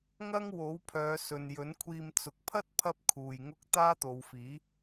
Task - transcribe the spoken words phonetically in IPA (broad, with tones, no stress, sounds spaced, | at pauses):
ŋ ɐ˥ ŋ w o˨˥ w pʰ œː˨˧ s ɵ˨ n j ɵ˨˥ n kʷʰ iː˧ m t͡s ʊ˨ k̚ pʰ ɐ˥ t̚ pʰ ɐ˥ p̚ kʰ uː˨ j ŋ ʊ˥ k̚ t̪ aː˥ t̪ o˨˧ w f iː˨˥